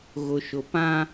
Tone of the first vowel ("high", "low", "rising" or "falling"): low